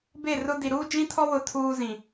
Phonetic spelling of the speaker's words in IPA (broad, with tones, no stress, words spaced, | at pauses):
be˦˨rʊ˦di˨ ɾuː˦d͡ʒĩ˦tʰɔ˦ wʊ˦tʰuː˦zĩ˨